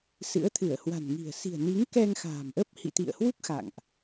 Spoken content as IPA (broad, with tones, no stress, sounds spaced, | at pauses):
s ɨ̰˧˥ ə̯ t̪ʰ ɨ˧˩ ə̯ h w a̤˨˩ n ŋ i̤˨˩ ə̯ s i̤˨˩ ə̯ n i˨˦ ŋ k ɛ˧ ŋ x a̤ː˨˩ m ʔ ə˦˥ p̚ h ḭ˧˨ t̪ ḭ˧˨ ə̯ h w u˦˥ k̚ x a̰˧˨ ŋ ʔ